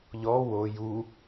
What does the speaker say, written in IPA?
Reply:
ʎ ɔ w o j u

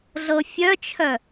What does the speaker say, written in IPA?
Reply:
ɮ ɤ fʲ œ t͡ʃʰ œ

